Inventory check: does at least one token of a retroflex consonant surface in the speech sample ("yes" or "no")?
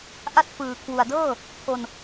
no